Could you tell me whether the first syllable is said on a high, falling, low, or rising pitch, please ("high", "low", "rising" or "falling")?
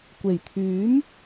low